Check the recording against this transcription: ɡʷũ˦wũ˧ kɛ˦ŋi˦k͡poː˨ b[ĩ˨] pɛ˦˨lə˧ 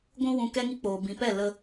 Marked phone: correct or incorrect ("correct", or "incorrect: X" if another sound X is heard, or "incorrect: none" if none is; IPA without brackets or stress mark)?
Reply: correct